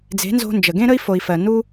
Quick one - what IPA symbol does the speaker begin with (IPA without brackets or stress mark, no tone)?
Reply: d͡z